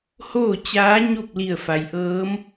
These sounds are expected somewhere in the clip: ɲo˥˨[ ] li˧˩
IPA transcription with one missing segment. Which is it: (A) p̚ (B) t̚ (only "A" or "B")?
A